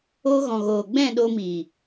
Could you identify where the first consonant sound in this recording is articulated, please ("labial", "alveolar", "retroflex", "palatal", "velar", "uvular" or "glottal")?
velar